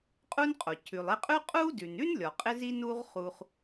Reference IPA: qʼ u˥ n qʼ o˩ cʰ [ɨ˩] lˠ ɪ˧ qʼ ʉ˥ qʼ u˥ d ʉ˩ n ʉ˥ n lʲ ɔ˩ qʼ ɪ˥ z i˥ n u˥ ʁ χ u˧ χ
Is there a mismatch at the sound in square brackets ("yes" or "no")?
yes